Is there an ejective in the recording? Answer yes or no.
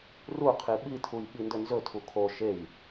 no